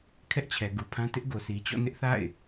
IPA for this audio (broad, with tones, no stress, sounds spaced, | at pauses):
kʰ ɛ˦ ʔ t͡ɕʰ ɛ˨ ɡ u˨ pʰ ã˦ t ɪ˦ ʔ ɡ o˨ s i˨ t͡ɕ ɔ̰˦˨ n ɪ˦ ʔ θ a̰˦˨ ɪ̯